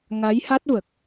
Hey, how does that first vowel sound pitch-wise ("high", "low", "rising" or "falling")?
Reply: rising